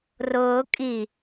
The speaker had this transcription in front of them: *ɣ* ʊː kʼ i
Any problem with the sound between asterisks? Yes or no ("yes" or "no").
yes